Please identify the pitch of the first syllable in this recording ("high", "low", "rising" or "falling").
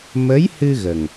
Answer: rising